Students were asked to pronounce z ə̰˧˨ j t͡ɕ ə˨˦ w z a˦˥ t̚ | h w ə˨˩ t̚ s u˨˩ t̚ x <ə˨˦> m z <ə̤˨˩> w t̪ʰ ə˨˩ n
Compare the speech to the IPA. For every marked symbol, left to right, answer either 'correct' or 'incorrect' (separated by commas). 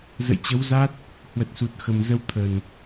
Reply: incorrect, incorrect